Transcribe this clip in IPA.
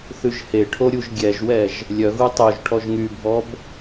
θ ʉ ʒ h e ʈʰ o ɾʲ u ʒ ɡʲ ɛ ʒ w ɛ ʒ | lʲ œ ɣ u tˤ o ʒ ʈʰ ɔ ʒ ŋ y bʱ ɔ b

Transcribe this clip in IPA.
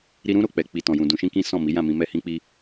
ɾ i˧ ɾ ũ˦ ɾ o˦˨ k͡p ɛ˧ k͡p i˧ t ɔ̃˧ j ũ˧ d ũ˧ ʃ ĩ˦ k ĩ˦ s ɔ̃˦˨ m i˨˦ j ã˦˨ m ĩ˧ m ɛ˦ h ĩ˦ k͡p i˦

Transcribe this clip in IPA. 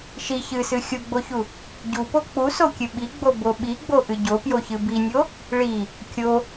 ʃ i ç ɨ s ɨ xʲ u ɡ͡b o ç u | ɟ u p o k͡p u s o kʲ ɨ ɓ i ɡ͡b o b o ɓ i ɡ͡b o ʔ ɨ ɟ o p j o ç ɨ b i nʲ o | ɭ i | kʲ o

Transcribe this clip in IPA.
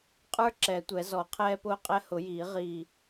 qʼ ə˞˦ ǁ ɛ˨˩˦ tʷ ɛ˨˩˦ z ɔ˨˩˦ qʰ ɛː˦ p ʊː˦ qʼ ɛ˦ h ʊ˨˩˦ j iː˨˩˦ ʁ iː˧˩

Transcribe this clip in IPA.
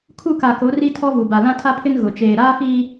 kʰ u˦˨ k a˨ k o˨˦ r i˦ tʰ ɔ˦ v u˨ b a˨ l ã˦ tʰ a˦ pʰ ɪ˦ n ɣ ʊ˨ t͡ʃ eː˨ ɾ aː˦ f iː˦

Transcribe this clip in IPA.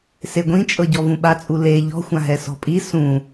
s e ɡʷ ĩ t͡ʃʼ ɤ ɟ ɔ v ũ ɓ a t͡sʼ u l e ʎ ɔ̤ xʷ ã ɦ ɛ s ɔ̤ pʼ i s ũ

